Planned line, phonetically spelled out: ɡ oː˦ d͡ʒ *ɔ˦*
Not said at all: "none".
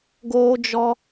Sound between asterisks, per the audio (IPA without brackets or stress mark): ɔ˦